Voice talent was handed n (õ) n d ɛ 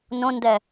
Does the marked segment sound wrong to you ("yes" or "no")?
no